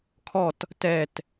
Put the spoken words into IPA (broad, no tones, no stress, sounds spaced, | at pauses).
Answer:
kʰ ɔ t | t ɛ t